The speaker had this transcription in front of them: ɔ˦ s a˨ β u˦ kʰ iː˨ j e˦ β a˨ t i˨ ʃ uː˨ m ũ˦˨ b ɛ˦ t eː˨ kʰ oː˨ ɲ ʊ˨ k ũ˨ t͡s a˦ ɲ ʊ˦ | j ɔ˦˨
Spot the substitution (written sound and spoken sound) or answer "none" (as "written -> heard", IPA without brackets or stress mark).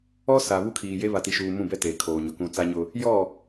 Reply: none